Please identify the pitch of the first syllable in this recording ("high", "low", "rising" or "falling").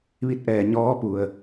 rising